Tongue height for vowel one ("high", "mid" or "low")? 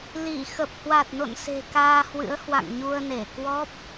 high